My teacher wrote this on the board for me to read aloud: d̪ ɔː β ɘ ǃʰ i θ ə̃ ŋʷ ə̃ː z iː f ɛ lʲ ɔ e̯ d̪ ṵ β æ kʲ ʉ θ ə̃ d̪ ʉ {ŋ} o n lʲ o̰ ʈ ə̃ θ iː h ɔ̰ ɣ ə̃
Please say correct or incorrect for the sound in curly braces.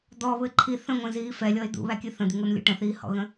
correct